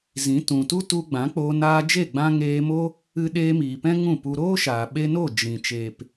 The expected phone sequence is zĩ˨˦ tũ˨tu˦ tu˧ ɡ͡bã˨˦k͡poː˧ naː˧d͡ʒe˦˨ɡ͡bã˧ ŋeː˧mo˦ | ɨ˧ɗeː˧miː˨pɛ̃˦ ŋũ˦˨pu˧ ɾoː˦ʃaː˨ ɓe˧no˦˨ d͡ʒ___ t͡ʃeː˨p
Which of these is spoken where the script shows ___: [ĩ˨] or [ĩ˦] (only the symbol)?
ĩ˨